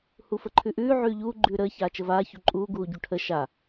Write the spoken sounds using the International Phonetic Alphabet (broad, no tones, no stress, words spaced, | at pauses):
hufəǃʰʉʔʉː ʕʉːʎuː ɡ͡ǃʉːɾəː çaːt͡ʃəvaː çuǃʼuː ɡuːɟuʈʰə ʃa